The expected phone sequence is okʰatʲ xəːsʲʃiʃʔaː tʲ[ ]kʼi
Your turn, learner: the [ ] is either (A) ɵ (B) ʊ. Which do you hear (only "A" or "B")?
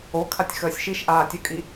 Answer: A